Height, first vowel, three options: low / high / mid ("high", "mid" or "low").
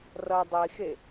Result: mid